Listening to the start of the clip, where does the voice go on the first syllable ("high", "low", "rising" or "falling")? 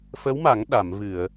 rising